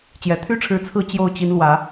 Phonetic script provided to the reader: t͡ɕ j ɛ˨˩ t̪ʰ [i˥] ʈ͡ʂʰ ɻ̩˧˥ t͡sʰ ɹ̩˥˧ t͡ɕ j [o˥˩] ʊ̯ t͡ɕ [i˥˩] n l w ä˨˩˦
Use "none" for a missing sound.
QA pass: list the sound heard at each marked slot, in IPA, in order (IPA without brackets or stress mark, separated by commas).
y˥, o˥˩, i˧˥